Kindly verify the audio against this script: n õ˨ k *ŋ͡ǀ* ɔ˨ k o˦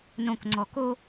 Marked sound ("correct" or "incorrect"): correct